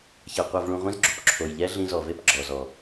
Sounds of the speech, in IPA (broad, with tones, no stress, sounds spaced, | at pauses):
ç ɛ˧ qʷ ɛ˧ v ɭ ũ˧ ʁʷ ĩ˦ z ɡ͡ǁ u˨ p ǁʰ o˨ j ʎ ɛ˦ ɮ ĩ˧ z ɔ˨ v e˦ p ɡ͡ǁ ɔ˨ z ɔ˨